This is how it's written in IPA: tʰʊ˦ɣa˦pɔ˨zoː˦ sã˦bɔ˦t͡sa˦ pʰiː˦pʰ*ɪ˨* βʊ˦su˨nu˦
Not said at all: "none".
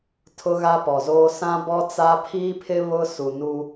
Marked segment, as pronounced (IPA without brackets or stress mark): ɪ˦